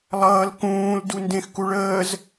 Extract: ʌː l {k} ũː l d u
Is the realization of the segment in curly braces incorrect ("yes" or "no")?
no